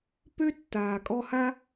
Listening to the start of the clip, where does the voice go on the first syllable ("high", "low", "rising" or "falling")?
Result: high